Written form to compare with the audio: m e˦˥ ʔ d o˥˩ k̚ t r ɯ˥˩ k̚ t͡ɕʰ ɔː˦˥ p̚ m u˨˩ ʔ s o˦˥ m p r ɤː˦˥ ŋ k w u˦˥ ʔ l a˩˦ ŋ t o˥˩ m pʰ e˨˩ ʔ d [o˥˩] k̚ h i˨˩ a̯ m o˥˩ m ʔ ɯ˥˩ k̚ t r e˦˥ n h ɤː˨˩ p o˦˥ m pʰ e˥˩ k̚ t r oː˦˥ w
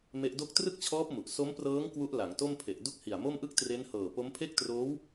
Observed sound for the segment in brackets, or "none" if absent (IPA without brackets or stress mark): u˥˩